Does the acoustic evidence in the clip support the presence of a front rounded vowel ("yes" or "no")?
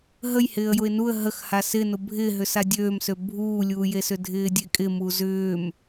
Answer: yes